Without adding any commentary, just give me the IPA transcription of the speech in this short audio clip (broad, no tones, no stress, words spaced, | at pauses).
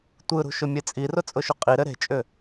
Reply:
tʷɯɾṳ ʃʊmʲet͡sʼirʊ t͡sʼʊʃʊqʼiɾɘ ɾe̤t͡ʃʼʏ